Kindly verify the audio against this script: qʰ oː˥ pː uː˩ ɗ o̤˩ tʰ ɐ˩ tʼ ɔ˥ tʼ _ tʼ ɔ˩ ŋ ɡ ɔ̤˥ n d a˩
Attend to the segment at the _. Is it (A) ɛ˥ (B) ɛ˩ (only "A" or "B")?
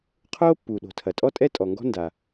A